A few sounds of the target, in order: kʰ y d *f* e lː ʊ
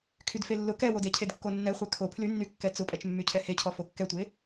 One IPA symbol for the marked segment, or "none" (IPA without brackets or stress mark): f